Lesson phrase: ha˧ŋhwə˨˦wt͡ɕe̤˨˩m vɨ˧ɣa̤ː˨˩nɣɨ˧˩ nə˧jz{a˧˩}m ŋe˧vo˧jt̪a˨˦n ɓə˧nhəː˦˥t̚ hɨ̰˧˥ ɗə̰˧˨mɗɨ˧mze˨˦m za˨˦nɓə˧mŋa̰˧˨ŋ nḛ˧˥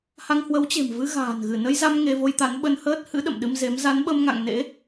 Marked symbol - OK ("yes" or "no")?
no